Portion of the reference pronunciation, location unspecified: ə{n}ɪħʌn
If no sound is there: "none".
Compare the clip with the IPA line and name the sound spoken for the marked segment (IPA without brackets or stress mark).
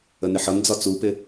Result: n